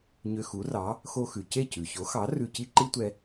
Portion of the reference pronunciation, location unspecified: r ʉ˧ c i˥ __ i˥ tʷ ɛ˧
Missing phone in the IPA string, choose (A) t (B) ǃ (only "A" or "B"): B